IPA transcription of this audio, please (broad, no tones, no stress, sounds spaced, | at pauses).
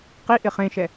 q i ʔ ɪ χ ẽ ʃ ɛ